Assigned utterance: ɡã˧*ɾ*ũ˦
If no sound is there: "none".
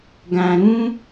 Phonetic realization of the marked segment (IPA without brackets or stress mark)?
ɾ